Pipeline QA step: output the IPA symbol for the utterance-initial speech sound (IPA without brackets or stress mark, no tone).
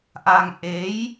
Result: ʔ